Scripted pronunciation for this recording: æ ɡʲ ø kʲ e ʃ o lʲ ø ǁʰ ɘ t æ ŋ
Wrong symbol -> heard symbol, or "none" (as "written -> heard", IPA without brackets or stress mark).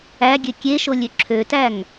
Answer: ɘ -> ø